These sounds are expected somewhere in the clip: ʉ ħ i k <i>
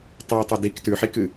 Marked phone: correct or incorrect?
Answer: incorrect: ɨ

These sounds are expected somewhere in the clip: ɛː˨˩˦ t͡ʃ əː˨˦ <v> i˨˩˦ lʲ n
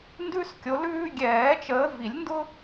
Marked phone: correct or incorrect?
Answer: correct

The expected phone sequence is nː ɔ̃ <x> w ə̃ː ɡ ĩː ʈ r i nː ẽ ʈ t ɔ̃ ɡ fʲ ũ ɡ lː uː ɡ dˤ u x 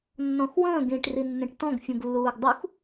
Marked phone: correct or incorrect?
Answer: correct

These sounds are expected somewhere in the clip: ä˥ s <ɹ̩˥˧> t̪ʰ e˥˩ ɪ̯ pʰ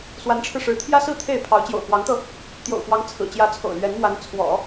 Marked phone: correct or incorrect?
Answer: correct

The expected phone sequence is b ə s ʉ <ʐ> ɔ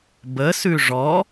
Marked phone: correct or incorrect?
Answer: correct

